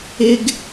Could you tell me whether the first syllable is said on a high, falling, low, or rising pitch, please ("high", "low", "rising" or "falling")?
high